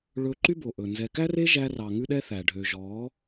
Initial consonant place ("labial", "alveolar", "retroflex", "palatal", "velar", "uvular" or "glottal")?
retroflex